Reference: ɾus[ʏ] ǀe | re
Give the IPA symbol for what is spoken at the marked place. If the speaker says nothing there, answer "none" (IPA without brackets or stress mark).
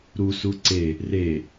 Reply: u